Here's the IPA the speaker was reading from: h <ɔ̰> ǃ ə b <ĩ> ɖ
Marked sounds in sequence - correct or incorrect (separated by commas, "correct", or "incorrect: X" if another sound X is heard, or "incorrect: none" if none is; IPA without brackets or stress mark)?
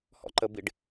correct, incorrect: i